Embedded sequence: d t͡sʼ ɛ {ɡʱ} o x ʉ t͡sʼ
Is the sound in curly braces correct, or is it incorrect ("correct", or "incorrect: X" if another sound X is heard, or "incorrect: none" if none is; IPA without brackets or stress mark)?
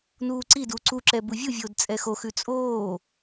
incorrect: x